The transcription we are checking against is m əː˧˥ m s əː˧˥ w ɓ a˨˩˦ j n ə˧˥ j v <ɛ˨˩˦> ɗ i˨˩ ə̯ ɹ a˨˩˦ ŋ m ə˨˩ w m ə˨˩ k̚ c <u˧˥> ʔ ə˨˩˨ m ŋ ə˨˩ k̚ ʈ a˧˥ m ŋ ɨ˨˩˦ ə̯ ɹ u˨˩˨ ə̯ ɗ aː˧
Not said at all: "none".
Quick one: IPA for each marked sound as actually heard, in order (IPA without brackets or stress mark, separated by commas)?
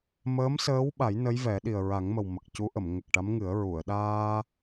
ɛ˨˩˦, u˧˥